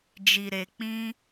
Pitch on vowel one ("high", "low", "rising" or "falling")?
low